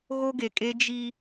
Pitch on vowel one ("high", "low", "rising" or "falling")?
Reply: high